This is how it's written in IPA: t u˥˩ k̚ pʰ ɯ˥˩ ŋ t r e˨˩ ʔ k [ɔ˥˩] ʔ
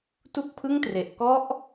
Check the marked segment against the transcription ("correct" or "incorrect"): incorrect